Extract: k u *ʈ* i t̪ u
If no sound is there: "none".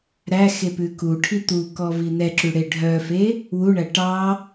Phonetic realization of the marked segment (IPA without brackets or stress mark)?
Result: ʈʰ